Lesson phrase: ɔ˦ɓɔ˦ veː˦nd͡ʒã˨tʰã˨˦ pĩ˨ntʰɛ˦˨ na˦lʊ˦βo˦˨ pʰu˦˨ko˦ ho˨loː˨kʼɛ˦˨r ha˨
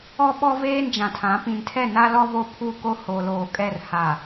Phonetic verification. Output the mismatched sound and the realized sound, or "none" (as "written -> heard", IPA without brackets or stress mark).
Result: ʊ˦ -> ɔ˦